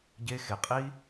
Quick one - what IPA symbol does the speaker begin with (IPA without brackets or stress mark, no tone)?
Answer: ɟ